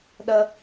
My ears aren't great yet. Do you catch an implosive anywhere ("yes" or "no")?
yes